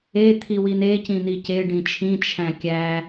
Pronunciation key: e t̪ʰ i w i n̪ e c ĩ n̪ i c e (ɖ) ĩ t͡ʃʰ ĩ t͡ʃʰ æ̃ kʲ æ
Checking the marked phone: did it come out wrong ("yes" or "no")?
no